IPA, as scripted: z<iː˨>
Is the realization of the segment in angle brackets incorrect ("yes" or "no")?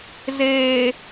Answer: yes